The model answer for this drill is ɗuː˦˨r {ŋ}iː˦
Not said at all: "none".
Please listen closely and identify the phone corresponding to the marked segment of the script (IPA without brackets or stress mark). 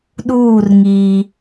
ŋ